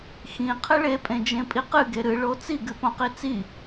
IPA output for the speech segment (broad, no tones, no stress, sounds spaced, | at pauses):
x ĩ qʰ ɘ ɭ e pʼ ẽ d͡ʒ ẽ pʼ i q ɨ ɡ e ɾ ɨ ɭ o t͡s i ɡ ɨ p õ q i t͡s i